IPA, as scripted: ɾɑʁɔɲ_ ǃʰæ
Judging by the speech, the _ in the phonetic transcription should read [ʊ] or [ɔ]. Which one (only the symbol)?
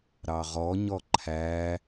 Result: ɔ